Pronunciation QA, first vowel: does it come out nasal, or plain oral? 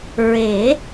oral